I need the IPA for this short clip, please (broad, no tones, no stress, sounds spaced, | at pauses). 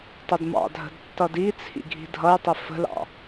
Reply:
tˤ ʊ d m ɑ̰ dʱ ə̤ d tː ʌ d i t͡sʰ ḭ ɡʱ i̤ dʱ ʌ j tˤ i f ə̤ l ɑ̰